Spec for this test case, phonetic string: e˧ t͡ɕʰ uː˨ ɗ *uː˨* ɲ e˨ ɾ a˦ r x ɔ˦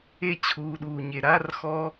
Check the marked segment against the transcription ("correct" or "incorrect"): correct